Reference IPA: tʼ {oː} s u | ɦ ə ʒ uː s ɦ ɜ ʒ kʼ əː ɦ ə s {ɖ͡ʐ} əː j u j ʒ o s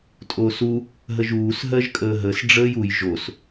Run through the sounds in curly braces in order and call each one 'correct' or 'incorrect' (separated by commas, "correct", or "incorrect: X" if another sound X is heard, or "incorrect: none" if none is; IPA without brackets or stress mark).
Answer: correct, correct